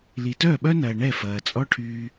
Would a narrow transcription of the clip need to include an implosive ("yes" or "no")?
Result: yes